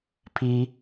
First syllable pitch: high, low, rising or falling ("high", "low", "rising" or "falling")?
high